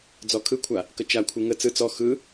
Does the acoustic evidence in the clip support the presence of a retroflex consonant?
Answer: no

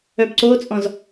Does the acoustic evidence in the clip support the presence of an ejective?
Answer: yes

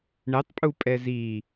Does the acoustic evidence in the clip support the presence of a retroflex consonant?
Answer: yes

